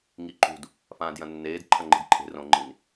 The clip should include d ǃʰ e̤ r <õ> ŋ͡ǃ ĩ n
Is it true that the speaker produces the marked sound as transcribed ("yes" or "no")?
yes